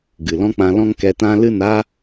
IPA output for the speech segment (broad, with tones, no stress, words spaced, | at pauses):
ɡɨ˨lɔ̃˦k͡pã˧ lɔ̃˦ŋkɛ˧tã˦ lɨ˦˨na˦